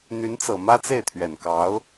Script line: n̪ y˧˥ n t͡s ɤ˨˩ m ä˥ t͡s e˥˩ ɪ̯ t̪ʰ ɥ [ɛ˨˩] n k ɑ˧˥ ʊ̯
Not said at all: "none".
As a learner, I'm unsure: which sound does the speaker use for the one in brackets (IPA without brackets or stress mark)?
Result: ɛ˨˩